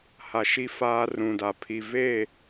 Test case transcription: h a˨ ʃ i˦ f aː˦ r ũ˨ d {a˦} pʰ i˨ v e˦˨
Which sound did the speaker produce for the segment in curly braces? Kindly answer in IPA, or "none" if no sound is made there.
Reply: a˨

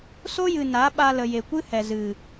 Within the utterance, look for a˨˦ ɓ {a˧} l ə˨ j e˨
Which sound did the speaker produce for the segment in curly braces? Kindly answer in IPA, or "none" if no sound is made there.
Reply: a˧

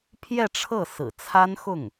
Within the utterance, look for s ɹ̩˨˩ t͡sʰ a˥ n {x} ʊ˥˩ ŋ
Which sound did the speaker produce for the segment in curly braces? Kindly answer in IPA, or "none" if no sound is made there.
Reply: x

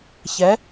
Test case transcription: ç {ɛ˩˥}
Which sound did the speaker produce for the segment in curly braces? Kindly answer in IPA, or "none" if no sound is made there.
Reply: ɛ˩˥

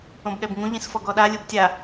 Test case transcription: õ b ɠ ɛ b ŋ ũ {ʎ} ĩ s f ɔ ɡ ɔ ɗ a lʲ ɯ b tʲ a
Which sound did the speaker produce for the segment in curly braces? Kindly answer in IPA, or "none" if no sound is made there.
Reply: ʎ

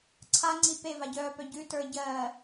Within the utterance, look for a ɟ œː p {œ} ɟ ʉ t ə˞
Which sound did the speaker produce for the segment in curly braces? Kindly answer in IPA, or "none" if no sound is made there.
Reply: œ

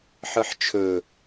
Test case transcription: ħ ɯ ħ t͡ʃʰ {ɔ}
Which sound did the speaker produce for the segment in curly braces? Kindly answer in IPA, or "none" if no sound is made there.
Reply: ɵ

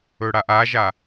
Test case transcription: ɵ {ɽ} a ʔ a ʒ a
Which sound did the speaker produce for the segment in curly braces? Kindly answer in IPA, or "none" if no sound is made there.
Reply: ɽ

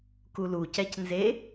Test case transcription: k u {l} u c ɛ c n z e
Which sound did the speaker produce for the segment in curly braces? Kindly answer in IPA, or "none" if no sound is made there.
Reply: l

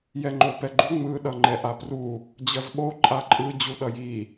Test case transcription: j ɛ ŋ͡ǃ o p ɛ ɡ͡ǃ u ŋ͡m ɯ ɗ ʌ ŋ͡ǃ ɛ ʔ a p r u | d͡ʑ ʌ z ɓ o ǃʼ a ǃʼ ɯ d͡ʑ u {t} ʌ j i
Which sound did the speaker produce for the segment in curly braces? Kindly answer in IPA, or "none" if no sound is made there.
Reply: ɗ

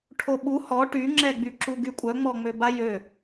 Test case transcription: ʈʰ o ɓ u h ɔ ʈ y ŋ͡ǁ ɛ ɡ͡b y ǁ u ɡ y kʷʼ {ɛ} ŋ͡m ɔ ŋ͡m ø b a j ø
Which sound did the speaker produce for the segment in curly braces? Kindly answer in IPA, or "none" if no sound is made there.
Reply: œ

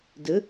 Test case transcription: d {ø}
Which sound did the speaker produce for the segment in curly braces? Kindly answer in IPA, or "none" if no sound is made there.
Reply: ə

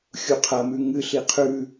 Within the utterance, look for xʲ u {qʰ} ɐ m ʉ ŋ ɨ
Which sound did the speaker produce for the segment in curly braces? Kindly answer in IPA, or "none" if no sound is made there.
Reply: qʰ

